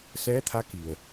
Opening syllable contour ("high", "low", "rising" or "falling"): rising